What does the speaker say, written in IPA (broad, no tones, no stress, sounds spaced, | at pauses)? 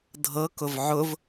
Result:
dʱ ɤ k ʊ v ʕ ʊ v